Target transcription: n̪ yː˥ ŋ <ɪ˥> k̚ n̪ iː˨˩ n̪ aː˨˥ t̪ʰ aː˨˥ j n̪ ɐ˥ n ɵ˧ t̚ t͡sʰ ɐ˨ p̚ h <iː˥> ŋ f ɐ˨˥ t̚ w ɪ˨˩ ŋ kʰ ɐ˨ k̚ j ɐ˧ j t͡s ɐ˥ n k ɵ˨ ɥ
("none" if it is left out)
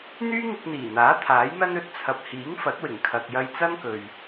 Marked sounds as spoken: ɪ˧, iː˨˥

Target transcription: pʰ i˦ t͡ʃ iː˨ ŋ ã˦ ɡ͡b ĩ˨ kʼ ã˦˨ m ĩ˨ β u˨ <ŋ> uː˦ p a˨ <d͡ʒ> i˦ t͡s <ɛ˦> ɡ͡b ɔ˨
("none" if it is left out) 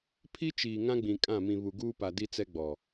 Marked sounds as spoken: ɡ, d, ɛ˦

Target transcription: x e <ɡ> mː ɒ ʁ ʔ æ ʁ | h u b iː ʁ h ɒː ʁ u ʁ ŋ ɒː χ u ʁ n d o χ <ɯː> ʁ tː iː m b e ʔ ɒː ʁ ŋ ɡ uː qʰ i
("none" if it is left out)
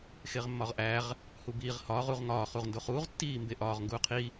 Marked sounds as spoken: ʁ, uː

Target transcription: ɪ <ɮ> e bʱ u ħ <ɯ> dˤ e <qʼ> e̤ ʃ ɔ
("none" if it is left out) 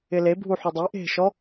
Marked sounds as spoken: l, u, ʔ

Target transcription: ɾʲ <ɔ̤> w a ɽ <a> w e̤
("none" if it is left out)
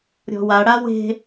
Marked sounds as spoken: ɔ̤, a

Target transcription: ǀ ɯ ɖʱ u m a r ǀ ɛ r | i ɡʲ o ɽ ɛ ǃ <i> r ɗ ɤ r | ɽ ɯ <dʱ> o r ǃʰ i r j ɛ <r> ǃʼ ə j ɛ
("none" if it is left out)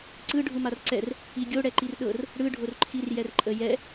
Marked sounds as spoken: i, ɖʱ, r

